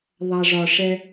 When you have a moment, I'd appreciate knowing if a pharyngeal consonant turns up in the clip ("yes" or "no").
no